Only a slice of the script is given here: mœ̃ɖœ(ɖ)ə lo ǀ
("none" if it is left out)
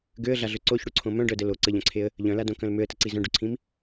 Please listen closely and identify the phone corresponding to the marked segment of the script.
d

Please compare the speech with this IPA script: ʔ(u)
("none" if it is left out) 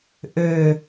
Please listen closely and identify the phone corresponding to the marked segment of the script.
ø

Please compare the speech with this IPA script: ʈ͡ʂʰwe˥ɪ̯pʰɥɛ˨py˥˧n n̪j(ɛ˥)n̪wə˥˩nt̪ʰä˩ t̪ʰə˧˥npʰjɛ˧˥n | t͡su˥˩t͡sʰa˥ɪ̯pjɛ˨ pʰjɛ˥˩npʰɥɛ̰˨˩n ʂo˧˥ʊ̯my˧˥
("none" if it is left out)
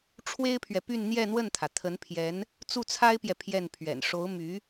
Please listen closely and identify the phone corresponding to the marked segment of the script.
ɛ˥˧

